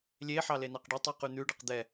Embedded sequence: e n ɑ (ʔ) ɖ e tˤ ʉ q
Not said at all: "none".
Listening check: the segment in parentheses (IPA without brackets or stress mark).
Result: q